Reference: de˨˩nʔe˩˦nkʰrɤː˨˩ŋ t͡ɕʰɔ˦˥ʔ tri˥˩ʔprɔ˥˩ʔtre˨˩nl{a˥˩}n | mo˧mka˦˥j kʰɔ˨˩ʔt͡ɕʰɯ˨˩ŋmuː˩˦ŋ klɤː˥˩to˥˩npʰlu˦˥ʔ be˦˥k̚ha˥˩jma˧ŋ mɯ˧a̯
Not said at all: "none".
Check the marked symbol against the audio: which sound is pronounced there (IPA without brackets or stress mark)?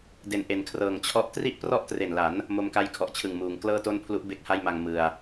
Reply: a˩˦